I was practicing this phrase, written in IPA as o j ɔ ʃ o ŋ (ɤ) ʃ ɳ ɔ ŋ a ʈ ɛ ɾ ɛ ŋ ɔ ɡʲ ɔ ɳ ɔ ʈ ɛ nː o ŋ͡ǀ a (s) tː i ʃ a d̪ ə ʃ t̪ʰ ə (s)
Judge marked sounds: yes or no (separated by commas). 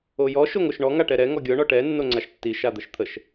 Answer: no, no, no